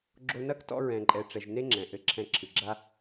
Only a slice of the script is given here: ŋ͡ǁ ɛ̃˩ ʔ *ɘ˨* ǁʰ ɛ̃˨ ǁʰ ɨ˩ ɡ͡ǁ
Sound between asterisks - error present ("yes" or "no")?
no